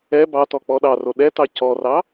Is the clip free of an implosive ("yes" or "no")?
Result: no